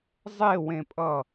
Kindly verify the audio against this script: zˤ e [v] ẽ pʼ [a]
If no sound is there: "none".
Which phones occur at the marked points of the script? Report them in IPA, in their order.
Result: w, ʌ

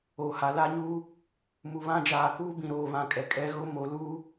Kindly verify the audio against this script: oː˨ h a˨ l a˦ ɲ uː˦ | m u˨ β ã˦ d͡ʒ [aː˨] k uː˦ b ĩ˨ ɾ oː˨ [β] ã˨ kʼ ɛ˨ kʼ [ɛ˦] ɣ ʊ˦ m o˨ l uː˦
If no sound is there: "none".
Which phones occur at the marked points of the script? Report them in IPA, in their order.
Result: aː˨, β, ɛ˦

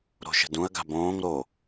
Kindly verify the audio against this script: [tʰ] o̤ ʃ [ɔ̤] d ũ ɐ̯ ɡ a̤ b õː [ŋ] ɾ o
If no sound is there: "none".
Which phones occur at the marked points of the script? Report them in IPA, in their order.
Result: ɾ, ə̤, ŋ

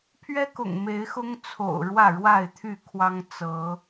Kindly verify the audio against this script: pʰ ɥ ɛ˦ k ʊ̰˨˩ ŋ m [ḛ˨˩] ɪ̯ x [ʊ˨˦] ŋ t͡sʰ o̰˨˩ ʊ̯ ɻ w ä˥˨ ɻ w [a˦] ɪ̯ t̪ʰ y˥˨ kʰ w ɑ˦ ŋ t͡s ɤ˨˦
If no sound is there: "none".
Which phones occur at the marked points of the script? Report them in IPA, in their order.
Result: e˨˦, ʊ˦, a˥˨

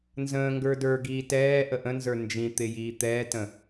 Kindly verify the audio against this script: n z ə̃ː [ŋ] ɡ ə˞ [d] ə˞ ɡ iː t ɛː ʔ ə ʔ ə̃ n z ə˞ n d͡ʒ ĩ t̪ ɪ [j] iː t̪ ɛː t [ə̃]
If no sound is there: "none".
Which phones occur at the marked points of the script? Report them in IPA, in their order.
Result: ŋ, d, j, ə̃

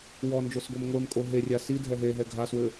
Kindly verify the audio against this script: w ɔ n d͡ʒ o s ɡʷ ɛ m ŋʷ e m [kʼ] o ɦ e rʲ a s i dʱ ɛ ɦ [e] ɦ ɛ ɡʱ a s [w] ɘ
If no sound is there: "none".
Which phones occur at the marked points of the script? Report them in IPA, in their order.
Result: kʼ, e, w

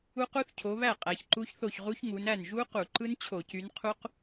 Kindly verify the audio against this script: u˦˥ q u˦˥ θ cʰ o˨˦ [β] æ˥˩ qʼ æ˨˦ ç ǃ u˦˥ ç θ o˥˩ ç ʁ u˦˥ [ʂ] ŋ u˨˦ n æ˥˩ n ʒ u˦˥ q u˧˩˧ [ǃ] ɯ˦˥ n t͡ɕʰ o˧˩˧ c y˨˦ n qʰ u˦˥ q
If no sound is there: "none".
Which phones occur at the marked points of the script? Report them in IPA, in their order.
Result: β, ç, ǃ

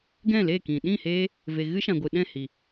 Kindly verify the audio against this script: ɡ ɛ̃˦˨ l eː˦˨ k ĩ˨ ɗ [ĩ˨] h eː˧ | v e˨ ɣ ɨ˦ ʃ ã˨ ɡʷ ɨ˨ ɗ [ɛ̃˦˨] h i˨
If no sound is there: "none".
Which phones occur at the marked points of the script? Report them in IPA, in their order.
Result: ĩ˦˨, ɛ̃˦˨

